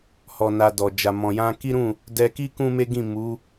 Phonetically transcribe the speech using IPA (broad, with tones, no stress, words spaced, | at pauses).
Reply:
hɔ˧na˧ dɔ˨ d͡ʒa˨mɔ̃˨jã˧ ki˦ɾũ˦˨ | dɛ˧ki˦ kũ˦me˦ɡĩ˦˨ mu˨˦